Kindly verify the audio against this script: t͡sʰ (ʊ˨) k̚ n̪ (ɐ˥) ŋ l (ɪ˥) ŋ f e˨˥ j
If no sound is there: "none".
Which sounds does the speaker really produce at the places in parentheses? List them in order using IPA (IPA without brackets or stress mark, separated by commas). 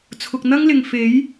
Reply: ʊ˨, ɐ˥, ɪ˨